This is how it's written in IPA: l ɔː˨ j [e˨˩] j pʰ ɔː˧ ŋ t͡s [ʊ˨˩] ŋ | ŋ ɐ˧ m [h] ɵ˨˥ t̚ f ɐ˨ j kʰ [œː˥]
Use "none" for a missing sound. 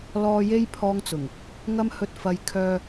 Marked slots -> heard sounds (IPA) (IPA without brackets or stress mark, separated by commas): e˧, ʊ˨˩, h, œː˨